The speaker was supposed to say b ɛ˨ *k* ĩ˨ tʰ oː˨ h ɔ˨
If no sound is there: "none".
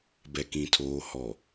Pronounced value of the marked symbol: k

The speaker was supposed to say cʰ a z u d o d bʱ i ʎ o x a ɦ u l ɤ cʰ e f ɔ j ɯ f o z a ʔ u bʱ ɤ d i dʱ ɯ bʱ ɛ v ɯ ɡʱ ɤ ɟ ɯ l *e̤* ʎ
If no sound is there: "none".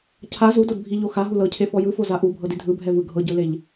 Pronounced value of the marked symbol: e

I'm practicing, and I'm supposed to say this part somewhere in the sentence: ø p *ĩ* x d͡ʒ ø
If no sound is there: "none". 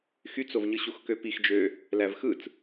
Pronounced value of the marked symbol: i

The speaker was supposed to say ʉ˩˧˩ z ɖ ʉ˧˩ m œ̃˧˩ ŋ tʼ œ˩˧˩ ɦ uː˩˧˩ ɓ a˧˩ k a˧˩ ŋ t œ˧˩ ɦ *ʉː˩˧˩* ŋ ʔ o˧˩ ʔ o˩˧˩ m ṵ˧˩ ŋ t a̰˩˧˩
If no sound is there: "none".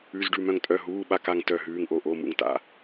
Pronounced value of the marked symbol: ʉː˩˧˩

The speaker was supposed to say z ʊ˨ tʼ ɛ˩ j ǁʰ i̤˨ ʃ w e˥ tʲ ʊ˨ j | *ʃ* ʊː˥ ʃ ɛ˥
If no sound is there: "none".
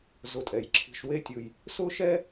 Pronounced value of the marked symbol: s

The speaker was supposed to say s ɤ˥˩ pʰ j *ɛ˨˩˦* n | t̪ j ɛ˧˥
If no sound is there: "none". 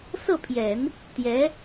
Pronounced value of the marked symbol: ɛ˨˩˦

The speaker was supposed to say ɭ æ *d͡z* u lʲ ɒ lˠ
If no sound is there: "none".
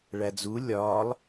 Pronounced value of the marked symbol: d͡z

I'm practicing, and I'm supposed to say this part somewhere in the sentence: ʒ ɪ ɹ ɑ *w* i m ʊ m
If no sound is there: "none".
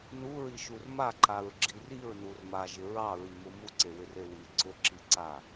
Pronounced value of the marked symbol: ɹ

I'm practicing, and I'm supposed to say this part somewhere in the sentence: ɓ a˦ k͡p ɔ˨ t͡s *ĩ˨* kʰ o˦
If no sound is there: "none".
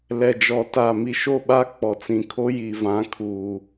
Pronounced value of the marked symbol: ĩ˨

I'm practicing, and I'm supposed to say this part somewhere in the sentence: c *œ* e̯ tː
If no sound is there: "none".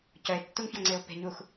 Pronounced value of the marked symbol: œ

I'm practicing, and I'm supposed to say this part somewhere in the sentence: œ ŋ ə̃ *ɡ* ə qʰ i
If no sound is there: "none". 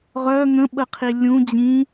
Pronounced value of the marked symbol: ɓ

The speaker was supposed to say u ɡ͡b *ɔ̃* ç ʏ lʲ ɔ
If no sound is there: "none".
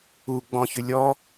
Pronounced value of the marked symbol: ɔ̃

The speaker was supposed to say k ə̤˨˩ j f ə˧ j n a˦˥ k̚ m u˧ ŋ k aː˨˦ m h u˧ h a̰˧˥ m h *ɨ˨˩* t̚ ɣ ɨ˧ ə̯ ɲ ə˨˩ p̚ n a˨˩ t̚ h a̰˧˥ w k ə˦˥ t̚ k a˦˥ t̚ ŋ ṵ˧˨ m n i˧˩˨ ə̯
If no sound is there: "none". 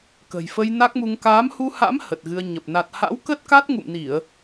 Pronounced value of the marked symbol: ə˨˩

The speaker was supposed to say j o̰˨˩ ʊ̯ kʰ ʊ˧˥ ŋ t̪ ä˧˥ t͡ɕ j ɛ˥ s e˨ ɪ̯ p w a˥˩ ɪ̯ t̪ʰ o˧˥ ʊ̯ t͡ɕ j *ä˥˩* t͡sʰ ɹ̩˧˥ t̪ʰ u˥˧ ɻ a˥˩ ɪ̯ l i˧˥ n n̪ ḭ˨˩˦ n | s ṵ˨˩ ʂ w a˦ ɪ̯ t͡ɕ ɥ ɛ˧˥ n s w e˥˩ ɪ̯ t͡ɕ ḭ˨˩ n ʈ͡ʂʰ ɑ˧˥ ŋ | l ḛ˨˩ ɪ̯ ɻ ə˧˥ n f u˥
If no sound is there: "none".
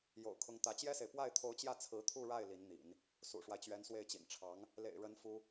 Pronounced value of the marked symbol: ä˥˩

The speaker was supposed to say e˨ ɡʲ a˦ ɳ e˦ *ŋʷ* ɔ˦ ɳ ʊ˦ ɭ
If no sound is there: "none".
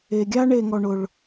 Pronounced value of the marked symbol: ŋ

